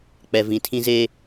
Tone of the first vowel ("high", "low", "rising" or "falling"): low